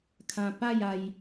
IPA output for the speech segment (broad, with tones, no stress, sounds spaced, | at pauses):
kʰ ã˧ p a˥˧ j a˧ j